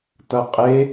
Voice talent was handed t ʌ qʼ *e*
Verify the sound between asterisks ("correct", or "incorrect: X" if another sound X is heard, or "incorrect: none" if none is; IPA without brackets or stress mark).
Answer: correct